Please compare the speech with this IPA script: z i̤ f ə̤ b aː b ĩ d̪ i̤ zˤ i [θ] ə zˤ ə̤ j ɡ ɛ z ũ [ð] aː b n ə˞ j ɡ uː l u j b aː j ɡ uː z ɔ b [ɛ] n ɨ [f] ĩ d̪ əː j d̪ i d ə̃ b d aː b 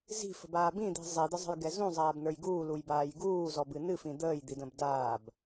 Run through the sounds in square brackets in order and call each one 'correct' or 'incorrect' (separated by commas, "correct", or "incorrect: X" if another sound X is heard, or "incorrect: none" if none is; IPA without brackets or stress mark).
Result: incorrect: d̪, incorrect: zˤ, incorrect: ɨ, correct